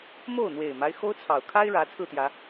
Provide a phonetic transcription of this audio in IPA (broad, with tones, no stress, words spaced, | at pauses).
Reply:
mo˥˨ʊ̯n̪we˨˩ɪ̯ma˦ɪ̯ xo˦ʊ̯t͡sʰɑ˨˩ʊ̯ kʰa˦ɪ̯ɻä˨˦ t͡sʰɹ̩˥˨t̪jä˨˦